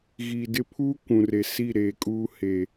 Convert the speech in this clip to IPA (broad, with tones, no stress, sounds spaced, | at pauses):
ɣ i˨ d ɪ˦ pʰ uː˦ kʷ ũ˨ r e˨ s i˦˨ ɾ eː˨ kʼ uː˦ h e˨